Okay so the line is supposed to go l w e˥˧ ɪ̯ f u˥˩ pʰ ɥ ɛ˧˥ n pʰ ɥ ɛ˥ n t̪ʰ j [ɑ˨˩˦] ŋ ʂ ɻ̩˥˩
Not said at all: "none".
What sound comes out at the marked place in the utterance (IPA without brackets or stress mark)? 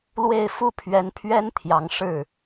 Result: ɑ˧˥